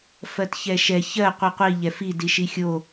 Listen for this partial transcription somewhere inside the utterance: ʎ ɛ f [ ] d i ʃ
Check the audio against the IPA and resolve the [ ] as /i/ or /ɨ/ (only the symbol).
i